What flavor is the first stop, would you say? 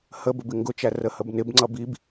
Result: plain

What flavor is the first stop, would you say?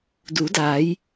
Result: plain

